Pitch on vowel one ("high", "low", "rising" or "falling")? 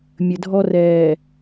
low